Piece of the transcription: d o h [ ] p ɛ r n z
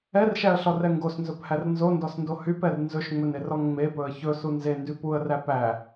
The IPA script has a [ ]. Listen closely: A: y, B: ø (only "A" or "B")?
A